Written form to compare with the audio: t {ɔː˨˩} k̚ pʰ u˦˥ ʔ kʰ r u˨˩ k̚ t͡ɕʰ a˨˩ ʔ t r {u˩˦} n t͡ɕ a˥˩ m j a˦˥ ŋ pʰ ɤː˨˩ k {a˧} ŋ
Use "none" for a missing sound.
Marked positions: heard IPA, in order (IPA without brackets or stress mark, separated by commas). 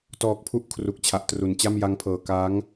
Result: ɔː˨˩, u˩˦, a˦˥